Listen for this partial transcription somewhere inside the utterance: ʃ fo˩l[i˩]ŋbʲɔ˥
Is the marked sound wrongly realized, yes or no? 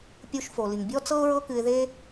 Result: no